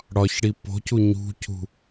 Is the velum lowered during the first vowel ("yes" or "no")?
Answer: no